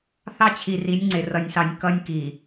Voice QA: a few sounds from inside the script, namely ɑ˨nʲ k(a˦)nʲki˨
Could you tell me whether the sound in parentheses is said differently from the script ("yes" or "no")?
yes